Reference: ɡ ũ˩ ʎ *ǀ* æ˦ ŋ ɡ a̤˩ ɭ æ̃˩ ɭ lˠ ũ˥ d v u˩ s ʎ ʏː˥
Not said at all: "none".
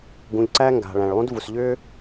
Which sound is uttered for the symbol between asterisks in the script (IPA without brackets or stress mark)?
ǀ